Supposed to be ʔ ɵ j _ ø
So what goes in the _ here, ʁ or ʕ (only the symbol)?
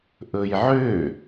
ʕ